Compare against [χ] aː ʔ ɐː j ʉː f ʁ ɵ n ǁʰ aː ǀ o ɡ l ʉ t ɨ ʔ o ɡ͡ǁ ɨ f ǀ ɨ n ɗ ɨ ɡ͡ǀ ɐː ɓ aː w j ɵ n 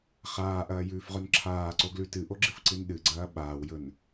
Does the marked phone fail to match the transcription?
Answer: no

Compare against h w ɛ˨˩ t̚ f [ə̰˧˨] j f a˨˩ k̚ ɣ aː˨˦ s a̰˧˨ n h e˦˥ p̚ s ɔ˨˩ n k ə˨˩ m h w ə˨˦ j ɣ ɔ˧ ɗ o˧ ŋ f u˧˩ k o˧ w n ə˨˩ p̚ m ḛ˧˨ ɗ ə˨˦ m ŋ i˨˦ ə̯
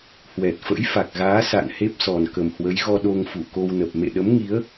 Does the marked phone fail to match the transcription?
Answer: yes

